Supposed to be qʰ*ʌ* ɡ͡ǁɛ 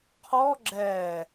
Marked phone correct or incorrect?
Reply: incorrect